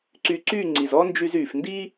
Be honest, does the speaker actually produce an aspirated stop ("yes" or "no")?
no